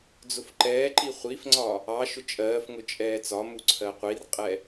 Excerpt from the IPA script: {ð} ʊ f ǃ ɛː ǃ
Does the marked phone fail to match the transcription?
yes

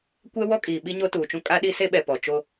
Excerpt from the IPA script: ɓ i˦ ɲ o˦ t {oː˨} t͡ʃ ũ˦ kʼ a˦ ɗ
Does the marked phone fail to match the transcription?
yes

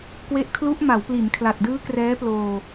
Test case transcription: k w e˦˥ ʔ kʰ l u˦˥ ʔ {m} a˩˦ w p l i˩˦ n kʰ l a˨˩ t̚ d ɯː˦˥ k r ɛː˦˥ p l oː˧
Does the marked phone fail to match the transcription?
no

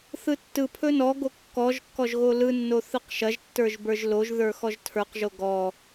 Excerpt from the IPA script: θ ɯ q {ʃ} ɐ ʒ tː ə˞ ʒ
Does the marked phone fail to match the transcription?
no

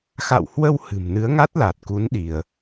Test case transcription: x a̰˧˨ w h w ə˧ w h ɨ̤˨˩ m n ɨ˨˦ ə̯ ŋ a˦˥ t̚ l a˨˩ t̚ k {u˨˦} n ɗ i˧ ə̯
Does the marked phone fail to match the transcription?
no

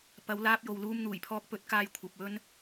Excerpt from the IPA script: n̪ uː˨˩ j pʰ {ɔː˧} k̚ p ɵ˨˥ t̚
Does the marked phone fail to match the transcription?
no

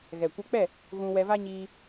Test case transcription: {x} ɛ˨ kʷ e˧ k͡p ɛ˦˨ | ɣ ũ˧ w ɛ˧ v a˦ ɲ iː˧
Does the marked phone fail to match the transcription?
yes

